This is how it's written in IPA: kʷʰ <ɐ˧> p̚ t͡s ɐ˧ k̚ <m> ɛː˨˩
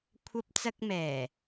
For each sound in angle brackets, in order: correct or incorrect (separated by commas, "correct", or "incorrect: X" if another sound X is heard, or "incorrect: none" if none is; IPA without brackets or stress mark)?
correct, correct